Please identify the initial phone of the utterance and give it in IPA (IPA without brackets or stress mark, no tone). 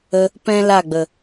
ə